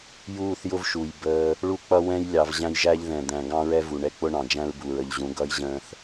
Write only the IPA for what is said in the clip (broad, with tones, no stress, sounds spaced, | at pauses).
j uː˦˨ θ j ʊ˦ v ʃ u˨ j b əː˦ | ɭ u˦ k͡p ʌ˦ w ɛ̃˦ j lʲ ɑ˨ v ʑ æ̃˦ j ʒ æ˦ ʎ ð ɛ̃˨ d̪ æ̃˨ ɡ ɑ̃˦ ɹ ɛ˦ v u˨ ɳ ɛ˦ k͡p ʊ˦ ɳ ɑ̃˨ d͡ʒ æ̃˦ ɹ b u˨ ɹ ə˨ ʎ ʑ ũ˨˦ ɡ ʌ˦ j ʑ ə̃ː˦ θ